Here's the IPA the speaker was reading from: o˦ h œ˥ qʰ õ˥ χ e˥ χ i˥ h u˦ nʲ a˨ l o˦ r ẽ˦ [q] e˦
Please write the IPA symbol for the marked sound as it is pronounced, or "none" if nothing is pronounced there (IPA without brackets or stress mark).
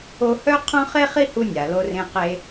q